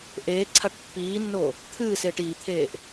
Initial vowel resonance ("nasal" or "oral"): oral